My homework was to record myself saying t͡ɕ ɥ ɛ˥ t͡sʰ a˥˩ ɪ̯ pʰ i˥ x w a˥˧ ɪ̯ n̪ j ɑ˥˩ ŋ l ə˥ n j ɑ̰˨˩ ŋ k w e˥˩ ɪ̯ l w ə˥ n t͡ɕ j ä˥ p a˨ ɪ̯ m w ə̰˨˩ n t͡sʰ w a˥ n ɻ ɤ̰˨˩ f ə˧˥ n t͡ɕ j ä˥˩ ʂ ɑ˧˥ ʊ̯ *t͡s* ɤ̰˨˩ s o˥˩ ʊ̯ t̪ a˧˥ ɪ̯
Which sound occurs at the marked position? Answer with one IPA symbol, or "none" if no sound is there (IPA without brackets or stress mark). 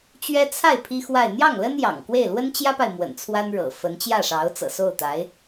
t͡s